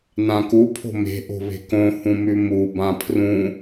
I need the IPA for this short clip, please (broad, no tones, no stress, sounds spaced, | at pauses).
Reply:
n ã k u pʰ o̤ m e̤ ʔ o̤ β e̤ k õ h ũ m ʉ m u b ã pʰ r ũ